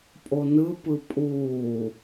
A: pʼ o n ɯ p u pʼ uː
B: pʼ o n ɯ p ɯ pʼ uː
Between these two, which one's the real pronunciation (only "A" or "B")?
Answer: B